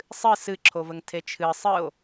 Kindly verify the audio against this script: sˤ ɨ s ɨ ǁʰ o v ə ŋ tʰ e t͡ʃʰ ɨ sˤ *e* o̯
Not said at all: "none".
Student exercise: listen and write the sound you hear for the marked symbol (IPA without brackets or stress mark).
ɨ